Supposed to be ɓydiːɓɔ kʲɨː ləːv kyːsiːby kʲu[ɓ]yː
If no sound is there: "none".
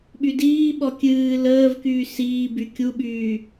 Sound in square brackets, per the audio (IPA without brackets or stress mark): ɓ